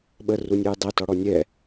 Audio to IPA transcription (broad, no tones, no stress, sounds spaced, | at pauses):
ɓ ə r u nʲ ʊ j dˤ e t ɔ ɽ ɔ nʲ ɛ